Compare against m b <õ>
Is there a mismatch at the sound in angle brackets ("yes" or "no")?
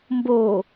yes